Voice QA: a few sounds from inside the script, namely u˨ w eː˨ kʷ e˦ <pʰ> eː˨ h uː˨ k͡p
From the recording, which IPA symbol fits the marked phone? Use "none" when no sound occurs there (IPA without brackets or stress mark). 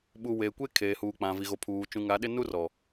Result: kʰ